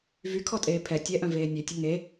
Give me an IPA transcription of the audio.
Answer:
v y kʰ ɔ tʼ eː pʰ ɛ tʲ ɛ ʔ œ̃ v eː nʲ e tʲ ə ŋ e

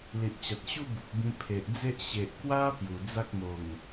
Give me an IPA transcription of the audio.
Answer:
l i˨ ʔ t͡ɕ a˨ t̚ ɕ u˦ b u˨ p̚ b ĩ˧ pʰ e˨ ʔ d͡z e˦ ʔ ɕ e˨ ʔ k w a˦ p j u˨˩ d͡z a˦ k̚ m o˨˩ ŋ

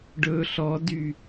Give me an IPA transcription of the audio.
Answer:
ɖ ɵ ɬ ɔ d y

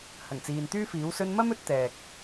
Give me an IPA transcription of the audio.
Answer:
h ɐ˨˩ ŋ t͡s iː˨ n t̪ yː˥ f iː˨˥ w s ɵ˧ n m ɐ˥ m ɵ˧ t̚ t̪ ɛː˨ k̚

